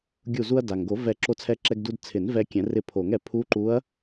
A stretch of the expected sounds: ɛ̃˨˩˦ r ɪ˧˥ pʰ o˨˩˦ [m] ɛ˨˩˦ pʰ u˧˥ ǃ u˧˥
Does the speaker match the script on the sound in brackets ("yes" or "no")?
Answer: no